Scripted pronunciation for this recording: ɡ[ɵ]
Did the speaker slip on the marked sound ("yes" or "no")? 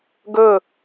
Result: no